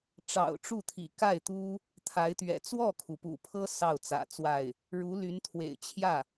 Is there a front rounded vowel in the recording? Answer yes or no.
yes